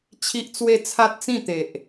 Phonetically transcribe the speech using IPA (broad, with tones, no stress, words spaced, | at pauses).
t͡ɕʰi˦ʔt͡swe˥˧ t͡sʰa˦t̚t͡sĩ˥˧t̪e˨ʔ